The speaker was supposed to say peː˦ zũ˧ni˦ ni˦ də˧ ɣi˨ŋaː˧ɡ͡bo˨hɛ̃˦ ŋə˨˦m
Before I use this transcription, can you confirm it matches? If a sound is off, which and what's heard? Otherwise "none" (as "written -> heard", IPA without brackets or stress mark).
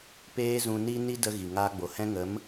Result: none